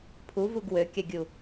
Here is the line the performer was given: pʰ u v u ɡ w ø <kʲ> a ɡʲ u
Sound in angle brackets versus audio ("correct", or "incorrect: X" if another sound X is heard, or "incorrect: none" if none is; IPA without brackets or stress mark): correct